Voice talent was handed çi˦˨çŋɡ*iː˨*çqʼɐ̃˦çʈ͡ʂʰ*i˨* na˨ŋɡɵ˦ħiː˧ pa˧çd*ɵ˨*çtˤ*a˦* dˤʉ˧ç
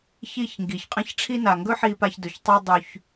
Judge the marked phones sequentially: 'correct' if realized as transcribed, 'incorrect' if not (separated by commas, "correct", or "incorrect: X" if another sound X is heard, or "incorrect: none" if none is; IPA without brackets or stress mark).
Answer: incorrect: i˨, incorrect: i˦, correct, correct